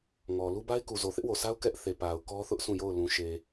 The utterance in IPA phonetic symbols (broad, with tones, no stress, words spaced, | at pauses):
ŋɔ˨ lu˦ba˦ɪ̯ku˨ zo˨θɪ˦ʔwo˨sa˦ʊ̯ kɛ˦ʔ θe˨ pa˨ʊ̯kɔ˦θʊ˦ʔ sũ˦˨jo˦˨ʊ̯ lũ˨ʃe˨